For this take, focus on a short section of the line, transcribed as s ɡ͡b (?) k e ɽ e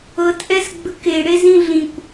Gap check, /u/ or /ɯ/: ɯ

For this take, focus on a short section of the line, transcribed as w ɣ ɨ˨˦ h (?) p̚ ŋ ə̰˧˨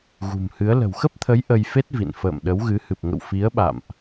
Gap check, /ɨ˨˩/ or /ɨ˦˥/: ɨ˨˩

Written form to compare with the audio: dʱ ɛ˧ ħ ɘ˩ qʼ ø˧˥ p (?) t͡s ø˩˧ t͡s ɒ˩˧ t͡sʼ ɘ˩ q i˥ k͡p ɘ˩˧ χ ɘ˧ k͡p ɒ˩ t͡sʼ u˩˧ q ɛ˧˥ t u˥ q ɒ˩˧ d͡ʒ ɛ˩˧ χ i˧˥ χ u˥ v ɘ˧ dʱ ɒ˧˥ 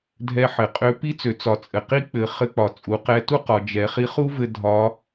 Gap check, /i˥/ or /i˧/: i˥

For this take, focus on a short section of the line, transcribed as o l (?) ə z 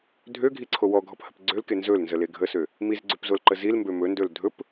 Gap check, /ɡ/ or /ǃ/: ǃ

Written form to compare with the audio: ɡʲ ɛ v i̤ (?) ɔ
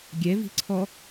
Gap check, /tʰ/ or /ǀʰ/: ǀʰ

